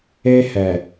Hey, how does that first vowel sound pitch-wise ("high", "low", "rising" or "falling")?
high